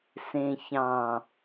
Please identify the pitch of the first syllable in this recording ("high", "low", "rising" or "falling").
low